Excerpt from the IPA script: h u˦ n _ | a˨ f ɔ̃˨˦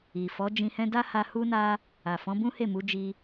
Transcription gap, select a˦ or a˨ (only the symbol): a˦